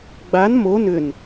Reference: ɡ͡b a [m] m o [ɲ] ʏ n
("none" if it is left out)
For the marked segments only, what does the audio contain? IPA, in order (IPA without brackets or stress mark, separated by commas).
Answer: n, n